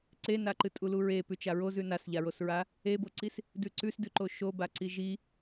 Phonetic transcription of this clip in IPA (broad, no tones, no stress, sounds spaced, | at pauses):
ǀ e n a ǃ ɨ tʼ u l u ɹ e p ʉ t͡ʃ a ɹ o z ʉ n a s ʎ a ɹ o s ɹ a | e b o ǀ i s | d ʉ ǀ ʉ s d ʉ ǃ o ʃ o b a ǀ i ʒ i